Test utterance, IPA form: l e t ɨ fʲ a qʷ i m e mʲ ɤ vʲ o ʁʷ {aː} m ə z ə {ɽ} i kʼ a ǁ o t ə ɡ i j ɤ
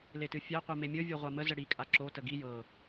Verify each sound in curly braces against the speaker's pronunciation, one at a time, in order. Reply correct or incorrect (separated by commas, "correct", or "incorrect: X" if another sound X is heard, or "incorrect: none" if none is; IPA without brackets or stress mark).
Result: incorrect: a, correct